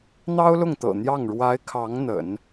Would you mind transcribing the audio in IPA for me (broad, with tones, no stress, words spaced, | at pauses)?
n̪ɑ˥ʊ̯lʊ˥˩ŋt̪ɤ̰˨˩ n̪jɑ˥˩ŋ ɻwa˧˥ɪ̯kʰɑ˧˥ŋ n̪ə̰˨˩˦n